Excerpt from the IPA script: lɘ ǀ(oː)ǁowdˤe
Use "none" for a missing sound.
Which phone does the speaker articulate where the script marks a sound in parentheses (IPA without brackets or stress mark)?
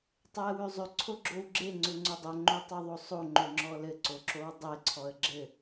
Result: o